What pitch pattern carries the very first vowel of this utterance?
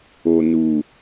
low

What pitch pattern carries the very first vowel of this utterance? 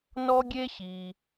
high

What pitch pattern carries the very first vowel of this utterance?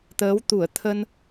rising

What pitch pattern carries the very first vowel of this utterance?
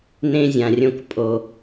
high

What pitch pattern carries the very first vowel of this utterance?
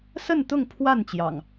falling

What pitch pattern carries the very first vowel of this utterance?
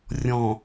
low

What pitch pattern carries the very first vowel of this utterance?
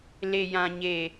low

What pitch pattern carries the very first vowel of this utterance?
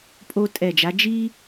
high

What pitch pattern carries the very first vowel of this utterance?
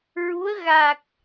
rising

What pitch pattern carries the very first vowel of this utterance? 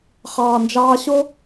low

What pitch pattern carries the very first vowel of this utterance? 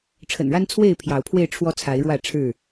low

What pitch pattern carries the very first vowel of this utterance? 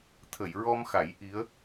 low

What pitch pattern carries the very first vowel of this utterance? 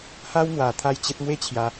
high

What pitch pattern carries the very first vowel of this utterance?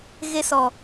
high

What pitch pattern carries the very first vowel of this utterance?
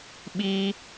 high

